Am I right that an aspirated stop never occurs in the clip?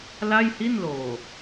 yes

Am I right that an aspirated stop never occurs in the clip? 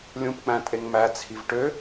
no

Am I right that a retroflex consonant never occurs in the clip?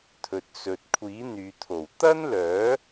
yes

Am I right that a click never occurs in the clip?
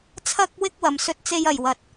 yes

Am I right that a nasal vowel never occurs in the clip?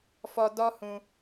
no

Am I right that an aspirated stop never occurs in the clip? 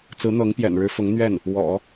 yes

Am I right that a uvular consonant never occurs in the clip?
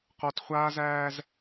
no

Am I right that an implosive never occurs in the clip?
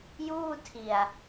yes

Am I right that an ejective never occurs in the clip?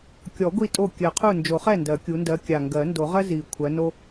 no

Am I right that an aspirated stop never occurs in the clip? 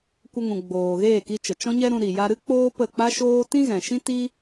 yes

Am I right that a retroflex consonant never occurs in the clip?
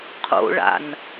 no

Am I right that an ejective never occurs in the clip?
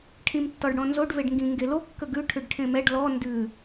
yes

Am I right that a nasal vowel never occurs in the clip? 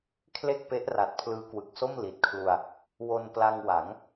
yes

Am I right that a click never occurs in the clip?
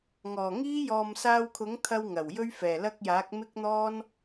yes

